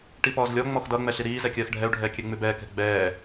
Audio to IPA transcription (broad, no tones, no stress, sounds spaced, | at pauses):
ʈ i p ɔː z lʲ ɔ ŋ͡m ɔ x d ʌ ŋ͡m ɛ ɬ i ɾ iː z ɛ kʲ ɜː x ɖʱ ɛ u̯ ɖʱ ɛː kʲ ɛ ŋ͡m ʉ b ɛː k ɛ̤ ɡ͡b ɛː